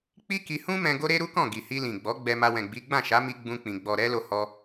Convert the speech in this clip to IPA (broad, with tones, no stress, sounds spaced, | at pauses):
k͡p i˦ k i˧ h ũ˦ m ɛ̃˧ ɡ o˦ ɾ e˦ ɾ u˦ k ɔ̃˦˨ ɡ i˨ h i˧ l ĩ˨ ɡ͡b ɔ˨˦ ɡ͡b ɛ˧ m a˧ w ɛ̃˨ ɡ͡b i˨˦ ɡ͡b ã˦˨ ʃ a˨˦ m i˧ ɡ͡b ũ˦ k͡p ĩ˧ ɡ͡b ɔ˨ ɾ ɛ˧ l o˦ h ɔ˦